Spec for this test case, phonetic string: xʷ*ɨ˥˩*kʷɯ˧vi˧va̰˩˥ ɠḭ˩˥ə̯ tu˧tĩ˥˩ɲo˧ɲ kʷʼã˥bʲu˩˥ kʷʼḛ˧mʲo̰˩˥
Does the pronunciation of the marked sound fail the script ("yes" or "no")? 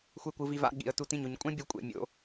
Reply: yes